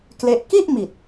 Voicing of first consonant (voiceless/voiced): voiceless